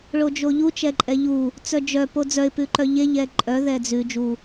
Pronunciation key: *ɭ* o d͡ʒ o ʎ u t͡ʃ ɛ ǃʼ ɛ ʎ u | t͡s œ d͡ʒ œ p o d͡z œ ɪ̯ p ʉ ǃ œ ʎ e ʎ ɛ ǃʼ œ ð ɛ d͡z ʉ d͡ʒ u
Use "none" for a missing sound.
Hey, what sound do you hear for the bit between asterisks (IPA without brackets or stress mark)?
ɭ